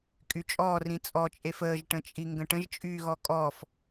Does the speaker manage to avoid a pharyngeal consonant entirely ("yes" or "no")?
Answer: yes